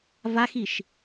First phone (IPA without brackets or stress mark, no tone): v